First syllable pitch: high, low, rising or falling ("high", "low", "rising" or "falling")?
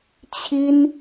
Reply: high